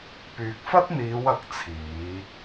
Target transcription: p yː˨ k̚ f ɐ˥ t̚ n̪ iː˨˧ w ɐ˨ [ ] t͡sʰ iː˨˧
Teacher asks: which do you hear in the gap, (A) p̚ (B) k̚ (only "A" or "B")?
B